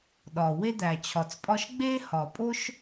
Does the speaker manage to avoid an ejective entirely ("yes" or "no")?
no